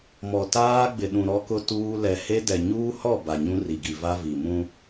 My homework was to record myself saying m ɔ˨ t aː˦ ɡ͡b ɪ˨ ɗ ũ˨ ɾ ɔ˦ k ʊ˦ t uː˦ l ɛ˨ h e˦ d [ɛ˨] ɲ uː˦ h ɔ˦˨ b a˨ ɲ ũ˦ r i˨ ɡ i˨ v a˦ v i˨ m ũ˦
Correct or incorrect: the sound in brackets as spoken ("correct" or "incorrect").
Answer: correct